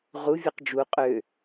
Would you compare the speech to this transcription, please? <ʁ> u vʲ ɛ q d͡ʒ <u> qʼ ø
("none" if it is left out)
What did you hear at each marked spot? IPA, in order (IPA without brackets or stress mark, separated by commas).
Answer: ʁ, u